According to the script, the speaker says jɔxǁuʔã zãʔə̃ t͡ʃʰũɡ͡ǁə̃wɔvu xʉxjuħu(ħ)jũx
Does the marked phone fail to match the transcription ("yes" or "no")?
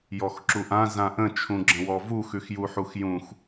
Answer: yes